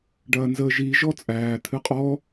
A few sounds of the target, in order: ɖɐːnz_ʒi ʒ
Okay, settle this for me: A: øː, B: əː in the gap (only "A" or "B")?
B